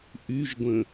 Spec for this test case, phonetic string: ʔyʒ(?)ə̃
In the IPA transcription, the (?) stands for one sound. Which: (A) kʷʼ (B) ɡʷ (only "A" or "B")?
B